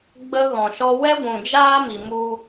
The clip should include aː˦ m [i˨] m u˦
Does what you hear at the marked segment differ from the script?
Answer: no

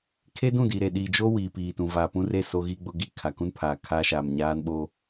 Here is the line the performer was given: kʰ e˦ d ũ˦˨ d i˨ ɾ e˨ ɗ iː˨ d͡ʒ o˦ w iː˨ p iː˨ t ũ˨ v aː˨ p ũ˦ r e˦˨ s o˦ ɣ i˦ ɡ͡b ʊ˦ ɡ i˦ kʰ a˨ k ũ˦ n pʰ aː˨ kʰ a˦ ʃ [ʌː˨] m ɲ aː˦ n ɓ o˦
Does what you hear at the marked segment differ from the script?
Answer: yes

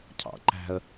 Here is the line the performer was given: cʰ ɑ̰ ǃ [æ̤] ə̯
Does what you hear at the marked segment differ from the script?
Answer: no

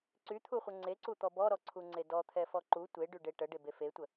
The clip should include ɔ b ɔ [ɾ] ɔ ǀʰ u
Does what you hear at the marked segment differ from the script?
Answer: no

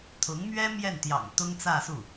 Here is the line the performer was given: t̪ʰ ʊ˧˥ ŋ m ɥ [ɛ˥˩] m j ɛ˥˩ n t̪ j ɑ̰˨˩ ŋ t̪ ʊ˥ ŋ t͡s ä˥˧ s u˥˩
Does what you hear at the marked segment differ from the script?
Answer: yes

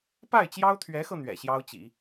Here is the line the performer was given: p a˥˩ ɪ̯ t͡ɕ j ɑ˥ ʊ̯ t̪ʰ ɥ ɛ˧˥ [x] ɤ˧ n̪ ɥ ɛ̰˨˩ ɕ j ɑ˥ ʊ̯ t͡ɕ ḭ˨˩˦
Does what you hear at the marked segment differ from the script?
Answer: no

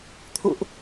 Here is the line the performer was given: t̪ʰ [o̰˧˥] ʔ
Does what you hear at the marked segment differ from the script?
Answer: yes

